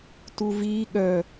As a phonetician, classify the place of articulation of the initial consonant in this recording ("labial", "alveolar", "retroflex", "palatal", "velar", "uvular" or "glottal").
alveolar